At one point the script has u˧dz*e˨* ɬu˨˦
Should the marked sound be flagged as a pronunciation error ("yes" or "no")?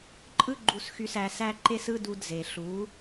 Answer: no